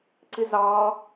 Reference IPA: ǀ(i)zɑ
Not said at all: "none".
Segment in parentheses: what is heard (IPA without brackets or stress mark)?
i